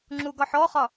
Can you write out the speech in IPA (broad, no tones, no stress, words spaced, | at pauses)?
ŋ͡ǁuɡɒħɔχɒ